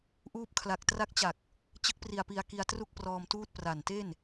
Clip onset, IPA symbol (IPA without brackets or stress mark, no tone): ʔ